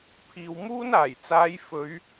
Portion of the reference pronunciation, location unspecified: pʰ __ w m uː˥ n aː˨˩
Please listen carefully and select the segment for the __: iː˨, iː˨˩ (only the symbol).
iː˨